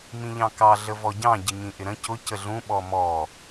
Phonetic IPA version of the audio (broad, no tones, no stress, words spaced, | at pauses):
mĩʎɑ̃kɑ ɮəvɔɟɑ̃ ɟɪɲĩʔɪɾə̃ cʊ cəɮũ ɓɔmɔ